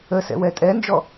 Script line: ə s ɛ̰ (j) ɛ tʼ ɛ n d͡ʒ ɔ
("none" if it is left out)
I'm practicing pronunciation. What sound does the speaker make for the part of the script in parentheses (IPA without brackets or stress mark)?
w